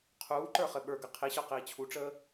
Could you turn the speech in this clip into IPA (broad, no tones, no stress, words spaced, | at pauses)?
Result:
qʰuːǃə˞ χɘɓə˞ɡɘ qʰiɕə˞ qiːt͡ɕʰuʈ͡ʂəː